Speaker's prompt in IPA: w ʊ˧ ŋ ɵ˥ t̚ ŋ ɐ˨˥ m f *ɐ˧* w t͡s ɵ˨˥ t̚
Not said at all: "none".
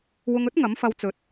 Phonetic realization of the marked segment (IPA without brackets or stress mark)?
ɐ˧